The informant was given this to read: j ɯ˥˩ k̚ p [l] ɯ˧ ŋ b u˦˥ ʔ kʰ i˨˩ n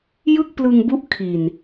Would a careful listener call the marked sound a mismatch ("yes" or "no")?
no